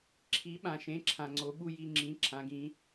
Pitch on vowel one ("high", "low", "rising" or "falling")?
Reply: rising